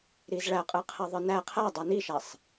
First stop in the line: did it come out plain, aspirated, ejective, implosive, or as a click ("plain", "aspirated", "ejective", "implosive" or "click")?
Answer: ejective